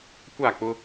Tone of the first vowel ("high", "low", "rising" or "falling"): falling